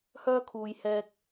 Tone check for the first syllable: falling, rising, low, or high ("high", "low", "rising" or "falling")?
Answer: high